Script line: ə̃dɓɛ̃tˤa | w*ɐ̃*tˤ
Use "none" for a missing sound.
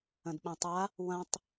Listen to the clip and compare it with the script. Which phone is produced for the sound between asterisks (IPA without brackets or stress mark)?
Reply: ɐ̃